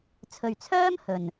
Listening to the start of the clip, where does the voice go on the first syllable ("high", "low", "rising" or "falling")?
low